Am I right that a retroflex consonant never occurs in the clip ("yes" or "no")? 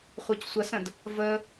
yes